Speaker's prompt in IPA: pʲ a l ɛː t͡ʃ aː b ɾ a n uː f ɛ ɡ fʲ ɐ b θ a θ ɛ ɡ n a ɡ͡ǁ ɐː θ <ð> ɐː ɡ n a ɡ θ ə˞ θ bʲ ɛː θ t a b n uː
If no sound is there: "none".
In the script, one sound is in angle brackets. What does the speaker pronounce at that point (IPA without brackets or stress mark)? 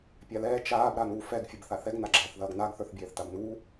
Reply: ð